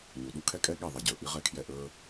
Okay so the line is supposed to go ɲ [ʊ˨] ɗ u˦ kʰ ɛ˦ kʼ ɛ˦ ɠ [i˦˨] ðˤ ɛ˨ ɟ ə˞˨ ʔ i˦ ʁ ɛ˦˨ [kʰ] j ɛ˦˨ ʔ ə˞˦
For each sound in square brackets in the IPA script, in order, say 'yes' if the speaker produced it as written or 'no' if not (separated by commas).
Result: no, yes, yes